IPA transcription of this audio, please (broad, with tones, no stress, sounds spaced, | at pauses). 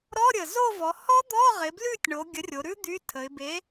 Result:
ɾ ɔ˧˥˧ ɾʲ ə˨˩ z o˦˨ v ɔ˩˧ h ɔ˦˥ d̪ ɔ˧˥˧ ʁ ɪ˩˧ b l ʉ˦˨ tʲ ɳ o˩˧ ɡʲ ə˨˥ rʲ o˩˧ ɾ ʉ˦˥ d̪ y˧˥˧ tʰ ə˩˧ ɪ̯ b e˨˥